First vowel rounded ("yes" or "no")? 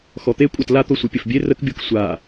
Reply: yes